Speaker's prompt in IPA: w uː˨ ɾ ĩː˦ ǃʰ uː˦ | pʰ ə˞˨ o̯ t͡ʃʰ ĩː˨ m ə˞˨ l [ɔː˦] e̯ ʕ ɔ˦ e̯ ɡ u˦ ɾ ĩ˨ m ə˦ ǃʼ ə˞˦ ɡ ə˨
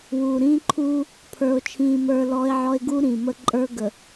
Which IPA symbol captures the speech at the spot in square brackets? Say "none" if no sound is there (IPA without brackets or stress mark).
ɔː˦